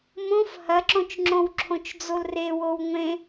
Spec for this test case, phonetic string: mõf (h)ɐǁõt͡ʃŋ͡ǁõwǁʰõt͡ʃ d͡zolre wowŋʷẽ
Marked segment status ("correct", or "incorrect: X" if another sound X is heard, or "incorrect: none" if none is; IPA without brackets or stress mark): correct